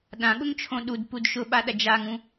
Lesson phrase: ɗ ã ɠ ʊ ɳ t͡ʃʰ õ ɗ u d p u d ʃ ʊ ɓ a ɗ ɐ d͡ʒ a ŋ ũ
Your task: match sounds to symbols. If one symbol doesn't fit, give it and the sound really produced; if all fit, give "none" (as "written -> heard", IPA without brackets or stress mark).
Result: ɳ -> ŋ